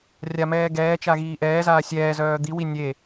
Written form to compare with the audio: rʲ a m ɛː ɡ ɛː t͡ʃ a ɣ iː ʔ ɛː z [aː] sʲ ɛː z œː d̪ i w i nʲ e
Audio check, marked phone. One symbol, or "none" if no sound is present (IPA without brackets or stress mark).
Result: aː